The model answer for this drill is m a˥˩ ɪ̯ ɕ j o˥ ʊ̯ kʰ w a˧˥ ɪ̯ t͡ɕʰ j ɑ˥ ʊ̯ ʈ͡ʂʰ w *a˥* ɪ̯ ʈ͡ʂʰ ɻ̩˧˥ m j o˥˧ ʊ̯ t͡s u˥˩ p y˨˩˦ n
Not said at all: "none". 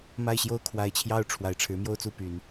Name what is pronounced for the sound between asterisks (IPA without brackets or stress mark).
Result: a˨˩